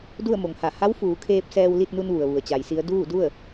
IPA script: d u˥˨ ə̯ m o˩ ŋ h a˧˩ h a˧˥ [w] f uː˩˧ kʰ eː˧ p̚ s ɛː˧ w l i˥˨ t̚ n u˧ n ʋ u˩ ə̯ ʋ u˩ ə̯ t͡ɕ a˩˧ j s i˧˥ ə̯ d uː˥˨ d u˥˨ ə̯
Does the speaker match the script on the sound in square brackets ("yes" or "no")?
yes